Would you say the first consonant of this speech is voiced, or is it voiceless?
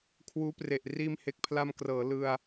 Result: voiceless